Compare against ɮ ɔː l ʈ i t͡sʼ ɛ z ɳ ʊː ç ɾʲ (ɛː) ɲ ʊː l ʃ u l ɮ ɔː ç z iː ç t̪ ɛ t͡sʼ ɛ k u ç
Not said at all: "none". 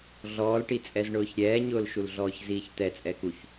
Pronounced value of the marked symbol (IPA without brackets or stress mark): ɛː